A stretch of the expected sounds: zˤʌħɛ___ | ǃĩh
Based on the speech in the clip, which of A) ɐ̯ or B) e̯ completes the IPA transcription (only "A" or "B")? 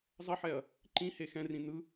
A